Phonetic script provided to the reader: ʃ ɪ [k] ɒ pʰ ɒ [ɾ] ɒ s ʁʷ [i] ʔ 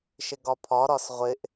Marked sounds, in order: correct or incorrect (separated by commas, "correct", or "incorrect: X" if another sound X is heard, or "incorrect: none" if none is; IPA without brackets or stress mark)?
incorrect: ɡ, correct, incorrect: ɪ